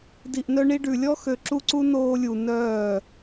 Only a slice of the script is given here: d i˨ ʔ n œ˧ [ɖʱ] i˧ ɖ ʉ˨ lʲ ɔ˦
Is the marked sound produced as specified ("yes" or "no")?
no